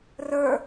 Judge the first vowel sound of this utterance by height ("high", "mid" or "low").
mid